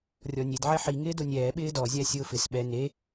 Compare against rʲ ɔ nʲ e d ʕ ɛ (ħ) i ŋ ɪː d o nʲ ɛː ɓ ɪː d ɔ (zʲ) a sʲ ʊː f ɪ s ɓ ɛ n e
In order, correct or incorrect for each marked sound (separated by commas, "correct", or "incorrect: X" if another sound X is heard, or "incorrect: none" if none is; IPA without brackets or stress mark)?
correct, correct